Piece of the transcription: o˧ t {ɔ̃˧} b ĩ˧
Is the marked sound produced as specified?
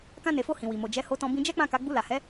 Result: yes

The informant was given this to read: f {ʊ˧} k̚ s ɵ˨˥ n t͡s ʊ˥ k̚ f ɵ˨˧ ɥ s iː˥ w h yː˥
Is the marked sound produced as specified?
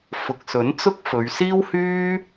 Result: no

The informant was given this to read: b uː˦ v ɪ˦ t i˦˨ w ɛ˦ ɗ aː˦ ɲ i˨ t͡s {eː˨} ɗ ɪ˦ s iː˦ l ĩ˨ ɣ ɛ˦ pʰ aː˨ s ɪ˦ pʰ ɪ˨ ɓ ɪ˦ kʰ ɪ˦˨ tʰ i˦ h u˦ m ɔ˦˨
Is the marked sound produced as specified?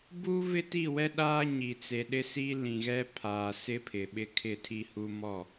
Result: no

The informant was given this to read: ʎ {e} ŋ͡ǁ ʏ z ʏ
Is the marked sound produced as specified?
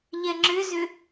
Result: no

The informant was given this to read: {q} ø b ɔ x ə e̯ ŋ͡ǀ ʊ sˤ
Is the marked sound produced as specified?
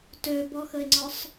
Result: no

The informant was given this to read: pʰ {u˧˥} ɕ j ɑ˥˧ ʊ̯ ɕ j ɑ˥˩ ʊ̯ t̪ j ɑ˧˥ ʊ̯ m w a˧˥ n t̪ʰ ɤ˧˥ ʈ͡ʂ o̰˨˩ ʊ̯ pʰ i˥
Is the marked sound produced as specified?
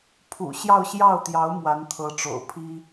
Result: no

